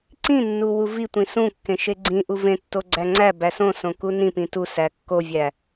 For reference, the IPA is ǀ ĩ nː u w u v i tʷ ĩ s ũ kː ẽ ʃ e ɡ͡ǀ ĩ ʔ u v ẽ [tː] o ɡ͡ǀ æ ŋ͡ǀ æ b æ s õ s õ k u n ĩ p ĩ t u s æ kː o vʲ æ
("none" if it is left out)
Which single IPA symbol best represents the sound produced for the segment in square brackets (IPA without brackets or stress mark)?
tː